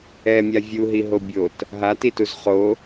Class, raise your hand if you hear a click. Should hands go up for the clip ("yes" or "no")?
no